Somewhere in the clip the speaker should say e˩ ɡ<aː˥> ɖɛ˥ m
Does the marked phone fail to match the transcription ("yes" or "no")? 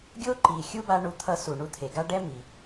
yes